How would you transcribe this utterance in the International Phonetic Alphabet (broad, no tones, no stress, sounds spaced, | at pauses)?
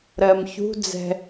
ɾ ɜ m ç ṳ d͡z ɛ̤